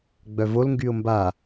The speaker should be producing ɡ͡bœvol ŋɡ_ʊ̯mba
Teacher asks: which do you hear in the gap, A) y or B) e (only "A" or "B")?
A